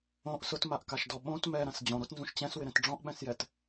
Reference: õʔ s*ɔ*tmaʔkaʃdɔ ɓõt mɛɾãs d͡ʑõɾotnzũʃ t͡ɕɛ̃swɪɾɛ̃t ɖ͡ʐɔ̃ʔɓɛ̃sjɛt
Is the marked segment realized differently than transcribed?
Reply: yes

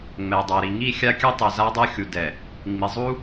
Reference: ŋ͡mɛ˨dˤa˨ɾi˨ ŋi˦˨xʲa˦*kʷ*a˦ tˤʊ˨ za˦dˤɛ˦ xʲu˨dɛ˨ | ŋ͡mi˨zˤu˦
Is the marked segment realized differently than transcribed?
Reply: yes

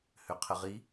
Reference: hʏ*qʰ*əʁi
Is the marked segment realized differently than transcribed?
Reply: no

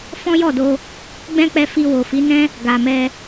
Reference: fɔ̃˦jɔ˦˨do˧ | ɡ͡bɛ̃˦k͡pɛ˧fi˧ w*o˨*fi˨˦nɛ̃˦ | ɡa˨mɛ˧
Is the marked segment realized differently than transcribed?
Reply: no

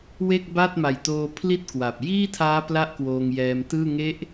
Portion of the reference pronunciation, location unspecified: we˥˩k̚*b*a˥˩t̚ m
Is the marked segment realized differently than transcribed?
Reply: no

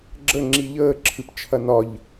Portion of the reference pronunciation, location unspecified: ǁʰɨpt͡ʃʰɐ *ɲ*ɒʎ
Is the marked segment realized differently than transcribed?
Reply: yes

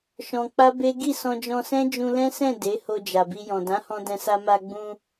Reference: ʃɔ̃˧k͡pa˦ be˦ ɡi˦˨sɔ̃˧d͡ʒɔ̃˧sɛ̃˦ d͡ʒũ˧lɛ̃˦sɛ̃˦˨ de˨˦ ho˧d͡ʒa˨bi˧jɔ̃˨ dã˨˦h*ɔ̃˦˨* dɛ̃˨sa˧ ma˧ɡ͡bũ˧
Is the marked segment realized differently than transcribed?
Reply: yes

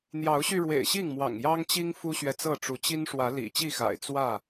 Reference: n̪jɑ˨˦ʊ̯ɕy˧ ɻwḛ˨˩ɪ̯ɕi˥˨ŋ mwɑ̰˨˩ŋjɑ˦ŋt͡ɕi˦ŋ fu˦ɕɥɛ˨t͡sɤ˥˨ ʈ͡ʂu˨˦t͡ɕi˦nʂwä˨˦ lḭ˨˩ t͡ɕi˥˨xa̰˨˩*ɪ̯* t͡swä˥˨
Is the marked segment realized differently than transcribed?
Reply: no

